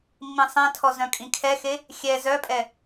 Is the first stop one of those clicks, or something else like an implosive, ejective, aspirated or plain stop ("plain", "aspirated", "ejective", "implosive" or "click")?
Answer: aspirated